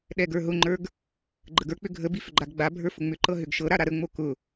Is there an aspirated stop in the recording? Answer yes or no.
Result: no